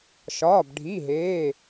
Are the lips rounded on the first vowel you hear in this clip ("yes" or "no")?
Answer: yes